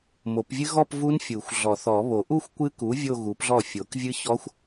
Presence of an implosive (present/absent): absent